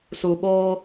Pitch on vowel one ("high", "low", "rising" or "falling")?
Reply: low